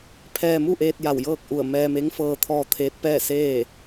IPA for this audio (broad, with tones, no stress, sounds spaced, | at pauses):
pʰ ɛː˧ m u˥˨ ʔ eː˧ t̚ j a˧˩ w j ɤː˥˨ k̚ ʔ u˧˩ ə̯ m ɛː˧ m e˧˥ ŋ f ɤː˧ t̪ʰ ɔː˧ t̪ʰ eː˧˥ t̚ p ɛː˥˨ s eː˥˨